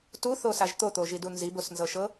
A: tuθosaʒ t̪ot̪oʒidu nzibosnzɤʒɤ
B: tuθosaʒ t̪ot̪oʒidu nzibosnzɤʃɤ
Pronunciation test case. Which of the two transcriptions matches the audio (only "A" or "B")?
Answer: B